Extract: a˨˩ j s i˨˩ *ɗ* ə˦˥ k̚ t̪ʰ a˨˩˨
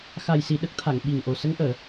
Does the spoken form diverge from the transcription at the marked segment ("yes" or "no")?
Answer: no